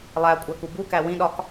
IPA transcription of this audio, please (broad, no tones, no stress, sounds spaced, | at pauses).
lˠ æ kʷʼ æ k u b u k æ w ĩ ɗ ɒ k